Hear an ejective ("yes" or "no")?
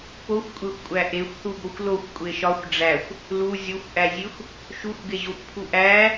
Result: yes